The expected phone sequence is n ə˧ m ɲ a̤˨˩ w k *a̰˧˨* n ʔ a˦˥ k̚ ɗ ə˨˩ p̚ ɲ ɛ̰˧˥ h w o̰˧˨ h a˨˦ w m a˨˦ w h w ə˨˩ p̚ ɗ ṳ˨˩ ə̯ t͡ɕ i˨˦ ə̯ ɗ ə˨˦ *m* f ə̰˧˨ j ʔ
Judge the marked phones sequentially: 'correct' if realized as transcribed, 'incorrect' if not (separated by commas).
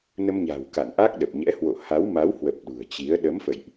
correct, correct